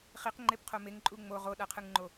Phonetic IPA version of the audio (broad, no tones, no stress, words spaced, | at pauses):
χiqŋ͡ǃepqʰo meŋǃʼu ŋ͡mo ʁoɗaqʰɯŋŋ͡ǃo